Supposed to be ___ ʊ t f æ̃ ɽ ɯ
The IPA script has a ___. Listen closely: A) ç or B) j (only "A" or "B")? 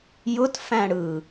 B